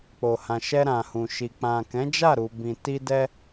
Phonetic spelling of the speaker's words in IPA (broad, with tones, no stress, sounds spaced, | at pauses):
k͡p o˨ h ã˨ ʃ ɛ˧ ɾ ã˨ h ũ˨ ʃ i˨ k͡p ã˨ k ɛ̃˨˦ d͡ʒ a˦˨ ɾ u˨ b ĩ˨ t i˧ d ɛ˧